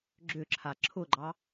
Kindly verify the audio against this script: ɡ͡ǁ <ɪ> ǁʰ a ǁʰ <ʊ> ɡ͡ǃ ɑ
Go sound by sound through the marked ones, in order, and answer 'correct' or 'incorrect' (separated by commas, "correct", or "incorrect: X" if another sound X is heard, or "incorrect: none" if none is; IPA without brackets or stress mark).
incorrect: ʏ, correct